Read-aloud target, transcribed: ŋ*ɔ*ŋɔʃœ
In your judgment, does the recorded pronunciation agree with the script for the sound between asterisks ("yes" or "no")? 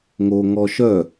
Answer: no